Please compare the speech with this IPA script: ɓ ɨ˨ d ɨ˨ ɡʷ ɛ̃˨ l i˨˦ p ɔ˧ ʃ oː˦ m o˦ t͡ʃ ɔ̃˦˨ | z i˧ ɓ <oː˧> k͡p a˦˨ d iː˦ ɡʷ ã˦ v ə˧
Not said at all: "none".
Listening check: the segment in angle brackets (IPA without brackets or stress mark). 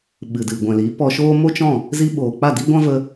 oː˨